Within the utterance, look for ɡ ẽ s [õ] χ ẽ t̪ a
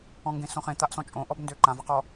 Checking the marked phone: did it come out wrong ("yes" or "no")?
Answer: no